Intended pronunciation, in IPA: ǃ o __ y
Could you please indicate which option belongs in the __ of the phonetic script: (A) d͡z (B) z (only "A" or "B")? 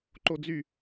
A